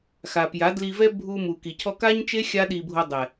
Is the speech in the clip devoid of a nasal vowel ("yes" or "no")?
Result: yes